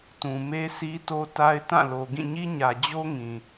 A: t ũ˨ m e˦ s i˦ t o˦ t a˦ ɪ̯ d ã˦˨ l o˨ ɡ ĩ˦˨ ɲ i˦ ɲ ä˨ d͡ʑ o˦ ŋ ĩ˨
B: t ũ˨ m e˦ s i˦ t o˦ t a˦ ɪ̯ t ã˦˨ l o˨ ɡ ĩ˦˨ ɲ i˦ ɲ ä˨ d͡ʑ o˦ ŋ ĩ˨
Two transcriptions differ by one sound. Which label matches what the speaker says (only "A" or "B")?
B